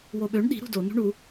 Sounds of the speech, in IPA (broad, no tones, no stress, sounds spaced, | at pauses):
w o ɓ ø ɳ ɗ i̤ ɾ ṳ d o n ṳ ɳ u